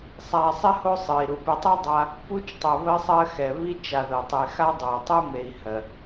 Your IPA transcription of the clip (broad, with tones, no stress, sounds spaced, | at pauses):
sˤ a˨ sˤ ɪ˥ h o˦ sˤ ɨ˩ i̯ ɾ u˩ p ɪ˨ tˤ ɨ˥ dˤ a˦ | p u˦ t͡ʃ tˤ o˨ β ɜ˦ sˤ ɜ˦ x ɛ˩ β i˥ t͡ʃ a˨ ð ɜ˩ tˤ e˨ x a˥ dˤ o˩ tˤ u˦ m e˨ i̯ h ɜ˩